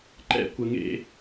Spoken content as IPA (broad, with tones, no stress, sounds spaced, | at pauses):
ǃ ɛ̰˦ kʷ ə˨ ŋ ḛ˧